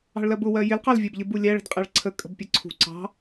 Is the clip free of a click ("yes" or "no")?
no